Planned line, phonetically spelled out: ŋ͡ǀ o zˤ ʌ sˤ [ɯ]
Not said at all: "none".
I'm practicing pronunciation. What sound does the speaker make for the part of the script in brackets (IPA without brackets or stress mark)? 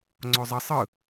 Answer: ɯ